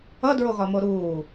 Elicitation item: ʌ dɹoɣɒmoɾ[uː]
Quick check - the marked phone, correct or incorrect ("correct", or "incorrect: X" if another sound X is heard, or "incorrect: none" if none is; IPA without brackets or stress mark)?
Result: correct